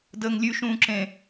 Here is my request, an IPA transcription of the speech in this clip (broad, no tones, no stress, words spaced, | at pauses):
dəːŋlʲʉ ʃũːǁẽ